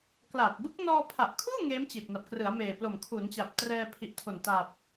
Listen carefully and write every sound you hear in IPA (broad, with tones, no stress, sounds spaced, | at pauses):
k l a˨˩ t̚ b ɯ˦˥ k̚ n ɔː˧ pʰ a˨˩ ʔ kʰ uː˥˩ ŋ eː˦˥ m t͡ɕ i˨˩ t̚ n a˨˩ p̚ k r ɯ˩˦ a̯ m eː˨˩ p l o˨˩ m kʰ u˩˦ n t͡ɕ a˨˩ p̚ t r ɛː˧ pʰ i˨˩ ʔ tʰ o˨˩ n t a˨˩ p̚